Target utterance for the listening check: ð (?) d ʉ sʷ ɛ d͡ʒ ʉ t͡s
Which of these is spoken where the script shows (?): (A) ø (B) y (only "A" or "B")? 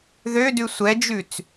A